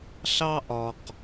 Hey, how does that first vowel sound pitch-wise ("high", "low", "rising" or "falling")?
high